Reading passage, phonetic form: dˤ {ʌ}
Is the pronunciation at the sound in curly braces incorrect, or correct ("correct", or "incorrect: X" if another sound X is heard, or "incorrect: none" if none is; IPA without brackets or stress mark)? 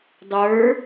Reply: incorrect: ə˞